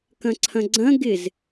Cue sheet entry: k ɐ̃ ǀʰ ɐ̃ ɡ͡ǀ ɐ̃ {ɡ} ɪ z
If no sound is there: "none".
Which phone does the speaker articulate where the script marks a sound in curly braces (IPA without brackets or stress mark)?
ɡ